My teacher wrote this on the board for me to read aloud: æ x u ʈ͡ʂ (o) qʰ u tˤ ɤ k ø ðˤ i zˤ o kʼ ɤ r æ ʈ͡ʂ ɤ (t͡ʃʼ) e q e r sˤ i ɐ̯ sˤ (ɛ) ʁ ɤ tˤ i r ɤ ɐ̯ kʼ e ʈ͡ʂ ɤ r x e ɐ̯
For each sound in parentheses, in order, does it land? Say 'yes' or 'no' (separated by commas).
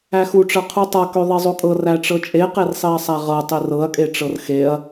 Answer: no, yes, no